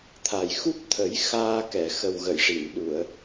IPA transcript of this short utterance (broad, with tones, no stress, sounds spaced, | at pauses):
t̪ʰ a˨˩ j x u˦˥ p̚ t̪ʰ ə˨˩˦ j x aː˧ k ɛ˨˩˨ x ə˨˩ w ɣ ə˨˩˨ j ʂ i˨˩˨ n ɗ u˨˩˨ ə̯